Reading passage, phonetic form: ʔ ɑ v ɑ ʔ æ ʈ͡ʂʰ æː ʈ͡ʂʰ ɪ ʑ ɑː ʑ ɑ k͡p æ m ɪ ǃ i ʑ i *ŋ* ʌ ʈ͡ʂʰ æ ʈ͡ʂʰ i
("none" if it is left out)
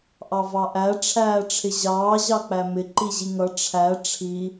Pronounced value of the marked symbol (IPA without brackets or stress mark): ŋ